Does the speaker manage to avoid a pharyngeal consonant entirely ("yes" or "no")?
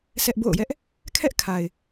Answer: yes